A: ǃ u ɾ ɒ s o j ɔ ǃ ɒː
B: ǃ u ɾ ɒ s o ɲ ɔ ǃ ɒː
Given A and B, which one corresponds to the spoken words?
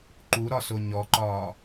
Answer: B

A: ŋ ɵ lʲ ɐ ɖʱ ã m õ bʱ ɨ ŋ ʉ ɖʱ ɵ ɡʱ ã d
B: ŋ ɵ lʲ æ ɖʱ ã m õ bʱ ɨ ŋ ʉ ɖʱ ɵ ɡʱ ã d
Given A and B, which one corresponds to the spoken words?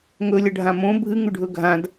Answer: A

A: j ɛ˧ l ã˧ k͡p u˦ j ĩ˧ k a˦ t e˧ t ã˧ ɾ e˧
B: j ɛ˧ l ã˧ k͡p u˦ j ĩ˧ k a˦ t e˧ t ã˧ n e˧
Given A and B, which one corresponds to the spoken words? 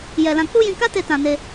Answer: B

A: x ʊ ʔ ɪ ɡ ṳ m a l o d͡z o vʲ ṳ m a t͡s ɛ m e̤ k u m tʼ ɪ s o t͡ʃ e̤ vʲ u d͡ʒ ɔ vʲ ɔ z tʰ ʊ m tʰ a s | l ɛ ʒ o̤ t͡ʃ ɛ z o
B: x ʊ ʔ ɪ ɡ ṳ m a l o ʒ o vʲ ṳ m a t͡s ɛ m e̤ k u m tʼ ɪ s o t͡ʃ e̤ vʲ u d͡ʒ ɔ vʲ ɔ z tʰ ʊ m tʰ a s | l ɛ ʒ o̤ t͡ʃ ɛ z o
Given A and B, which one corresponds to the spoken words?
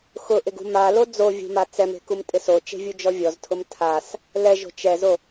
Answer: A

